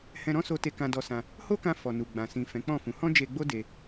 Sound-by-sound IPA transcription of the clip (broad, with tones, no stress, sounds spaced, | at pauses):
h ɛ̃˧ ɾ ɔ̃˦ s o˧ t e˧ k ã˧ d ɔ˧ s ã˧ | h o˦ k ã˧ f ɔ˨ n u˨ ɡ͡b ã˨ s ĩ˨ f ɛ̃˨˦ k͡p ɔ̃˦˨ f ũ˨˦ h ɔ̃˦ d͡ʒ e˧ ɡ͡b o˦ d e˧